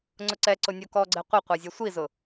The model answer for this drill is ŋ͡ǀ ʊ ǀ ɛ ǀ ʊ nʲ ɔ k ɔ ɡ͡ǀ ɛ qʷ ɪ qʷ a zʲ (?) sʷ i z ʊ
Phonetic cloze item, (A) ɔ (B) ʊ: A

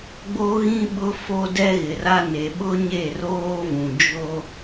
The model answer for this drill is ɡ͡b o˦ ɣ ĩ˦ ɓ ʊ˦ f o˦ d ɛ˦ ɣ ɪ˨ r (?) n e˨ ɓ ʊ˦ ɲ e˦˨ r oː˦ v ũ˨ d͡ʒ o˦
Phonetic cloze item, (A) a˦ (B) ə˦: A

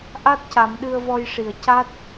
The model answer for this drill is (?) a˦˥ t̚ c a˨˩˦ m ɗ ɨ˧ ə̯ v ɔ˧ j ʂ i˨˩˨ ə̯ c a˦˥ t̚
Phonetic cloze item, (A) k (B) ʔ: B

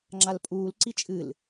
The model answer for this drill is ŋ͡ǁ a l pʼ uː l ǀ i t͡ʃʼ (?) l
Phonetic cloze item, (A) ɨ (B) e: A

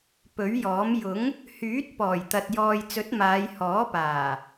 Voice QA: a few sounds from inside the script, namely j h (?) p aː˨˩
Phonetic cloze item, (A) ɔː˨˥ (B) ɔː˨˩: A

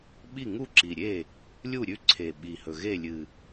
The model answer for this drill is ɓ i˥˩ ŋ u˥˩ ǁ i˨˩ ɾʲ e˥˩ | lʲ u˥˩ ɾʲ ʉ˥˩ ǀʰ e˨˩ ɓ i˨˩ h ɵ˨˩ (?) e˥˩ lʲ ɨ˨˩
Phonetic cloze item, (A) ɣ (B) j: A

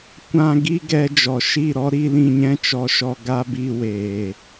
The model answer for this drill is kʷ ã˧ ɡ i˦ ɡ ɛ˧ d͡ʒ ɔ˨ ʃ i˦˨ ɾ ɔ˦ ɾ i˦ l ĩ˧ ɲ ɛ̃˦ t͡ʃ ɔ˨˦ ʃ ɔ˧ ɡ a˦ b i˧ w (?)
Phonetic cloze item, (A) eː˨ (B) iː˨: A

